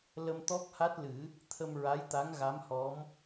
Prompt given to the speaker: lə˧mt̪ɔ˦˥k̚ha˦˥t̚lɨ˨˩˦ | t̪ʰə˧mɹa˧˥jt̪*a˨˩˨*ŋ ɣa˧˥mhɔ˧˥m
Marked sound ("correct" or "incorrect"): incorrect